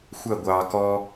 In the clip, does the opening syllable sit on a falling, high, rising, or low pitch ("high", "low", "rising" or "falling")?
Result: falling